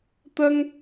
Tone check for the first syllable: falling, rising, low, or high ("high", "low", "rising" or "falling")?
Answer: high